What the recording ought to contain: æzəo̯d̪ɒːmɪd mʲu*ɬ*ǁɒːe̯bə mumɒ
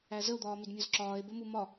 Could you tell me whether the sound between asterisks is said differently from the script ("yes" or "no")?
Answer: yes